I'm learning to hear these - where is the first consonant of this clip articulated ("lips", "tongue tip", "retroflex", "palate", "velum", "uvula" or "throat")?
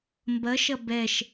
lips